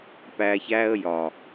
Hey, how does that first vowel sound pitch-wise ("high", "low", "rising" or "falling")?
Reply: low